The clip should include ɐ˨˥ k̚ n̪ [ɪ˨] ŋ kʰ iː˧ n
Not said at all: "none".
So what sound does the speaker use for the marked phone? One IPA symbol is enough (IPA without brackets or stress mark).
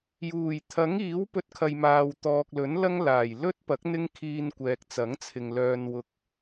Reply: ɪ˥